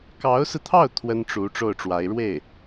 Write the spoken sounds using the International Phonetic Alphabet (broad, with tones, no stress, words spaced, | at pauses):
kɑ˧˥ʊ̯sɹ̩˧t̪ʰɑ˥˩ʊ̯ t̪ʰwə˥nʈ͡ʂu˧˥ ʈ͡ʂo˥˩ʊ̯ʈ͡ʂwa˧˥ɪ̯ ɻwe˥˩ɪ̯